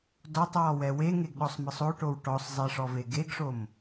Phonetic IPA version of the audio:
d ɔ tˤ w ɔ w ɛ w e ŋ e ɡ ɗ ɔ sˤ m ɯ sˤ o ʈ o w ʈ ɔ sˤ zˤ e ʂ ɔ v e ɡ e ɡ ʂ o m

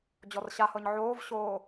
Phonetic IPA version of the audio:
d͡ʑ ɔ r ɕ a h ɤ ɲ ʕ oː v ɕ oː

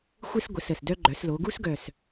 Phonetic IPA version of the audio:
xʷ ɨ˦ s ɡʷ ə˩˥ s ə˨˩ s d œ˦ ɡ͡ǃ œ˩˧ s l o˩˧ ɡ u˦ s ɡ œ˨˩ s

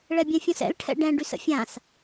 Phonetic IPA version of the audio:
ɭ ɛ bʲ ɛ̃ fʲ õ s ɛ̰ l ʈʰ ɛ̰ ɖ ɛ̃ ɖ y s ə̰ fʲ ã s

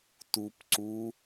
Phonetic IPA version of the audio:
t u p ǀ u

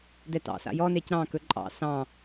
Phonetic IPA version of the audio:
d ɛ t ɑ̰ s a̰ j ɔ n e c ɾ ɑ̃ k ɵ ǃʼ ɑ̰ s ɑ̃

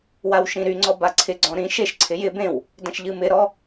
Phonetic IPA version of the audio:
w a w ʃ ĩ ɾ y ŋ͡ǀ ɔ b a ǀʰ ɪ ɡ͡ǀ ɔ̃ ɾ ĩ ʃ e ʃ ǀʰ ɪ j ɪ b ẽ w | d ɐ̃ ʃ ʎ ɨ m ɪ ɾ ɔ

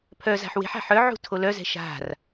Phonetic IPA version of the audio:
pʰ œ z a̤ ħ w e̤ ħ a̤ ħ œ ʕ ṳ tʰ o l œ z ɛ̤ ʃ a̤ r

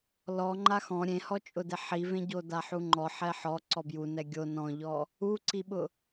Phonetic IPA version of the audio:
l ɔ ŋ͡ǃ a x ɔ̃ ɾʲ ẽ h ɔ t͡ʃʼ ʊ d e ħ i v ẽ ɟ o d a ħ u ŋ͡ǃ ɔ ħ ɛ ħ ɔ ǀ ɔ b j u n ɛ ɡʲ o n ɔ̃ ʎ ɔ | u ǀ i ɓ ʊ

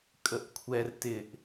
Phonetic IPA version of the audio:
kʼ ə ʔ kʷʰ ɛ r t ɪ ʔ

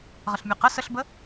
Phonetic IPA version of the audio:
ʁ ə ɬ mʲ ø q ə s ə ɬ b ə

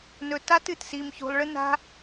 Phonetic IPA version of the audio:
n ɵ˧ t a˦ t ɨ˨ t s i˧ m ç ṳ˧ lˠ ɭ ɨ˦ n a̤˧

